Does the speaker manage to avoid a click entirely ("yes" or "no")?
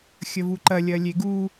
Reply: no